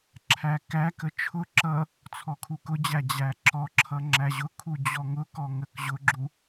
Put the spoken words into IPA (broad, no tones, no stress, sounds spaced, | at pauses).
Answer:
ǁʰ æ k æ k ə t͡ʃʰ ʊ ǁ ʌ | t͡sʰ ɔ kʰ u k ʊ d͡ʑ æ d͡ʑ æ ǁ ɔ ǁʰ ʌ ŋ͡ǁ æ ʑ ʊ kʰ u d͡ʑ ɔ ŋ ʊ k ɔ ŋ ə k ʑ ʊ ɡ͡ǁ u